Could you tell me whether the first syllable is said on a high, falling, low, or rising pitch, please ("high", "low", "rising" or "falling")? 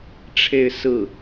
falling